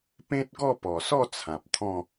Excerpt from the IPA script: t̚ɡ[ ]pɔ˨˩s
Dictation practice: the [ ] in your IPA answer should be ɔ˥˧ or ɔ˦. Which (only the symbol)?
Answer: ɔ˥˧